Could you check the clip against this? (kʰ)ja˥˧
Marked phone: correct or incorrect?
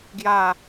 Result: incorrect